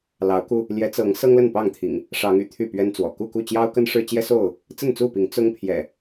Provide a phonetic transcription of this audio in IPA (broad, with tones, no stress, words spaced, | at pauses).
lɑ˨˦ʊ̯ku˧ | ljɛ˨˦t͡sɤ˨˦ŋ sɤ˦ŋlə˥˨npɑ˥˨ŋt̪ʰḭ˨˩ŋ | ʂɑ˨˦ŋy̰˨˩ t̪ʰy˥˨pɥɛ˦nt͡swɔ̰˨˩ ku˥˨ku˥˨ t͡ɕjɑ˦ʊ̯kə˦n ʂɻ̩˦t͡ɕjɛ˦so˥˨ʊ̯ | t͡sə˥˨nt͡su˥˨pi˨˦ŋ t͡sʊ˦ŋ pʰjɛ̰˨˩